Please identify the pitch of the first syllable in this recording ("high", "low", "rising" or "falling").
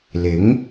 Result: rising